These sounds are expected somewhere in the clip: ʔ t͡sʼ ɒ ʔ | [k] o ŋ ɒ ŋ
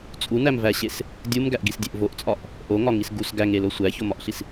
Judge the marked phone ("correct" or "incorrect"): incorrect